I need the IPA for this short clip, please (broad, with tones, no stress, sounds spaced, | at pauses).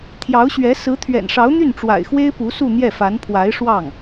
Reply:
t̪ʰ j ɑ˧˥ ʊ̯ ɕ ɥ ɛ˧˥ s ɹ̩˧˥ t̪ʰ ɥ ɛ̰˨˩ n ʂ ɑ˧˥ ʊ̯ n̪ y˥˩ n ʈ͡ʂ w a̰˨˩ ɪ̯ x w e˥ ɪ̯ p u˧˥ s u˥˧ n̪ j ɛ˥˩ f a˧˥ n pʰ w a˧˥ ɪ̯ ʂ w ɑ˥˩ ŋ